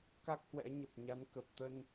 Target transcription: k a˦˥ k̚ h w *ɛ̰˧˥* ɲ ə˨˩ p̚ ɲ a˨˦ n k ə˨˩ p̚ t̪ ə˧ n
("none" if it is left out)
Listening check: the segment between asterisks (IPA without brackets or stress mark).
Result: ɛ̰˧˥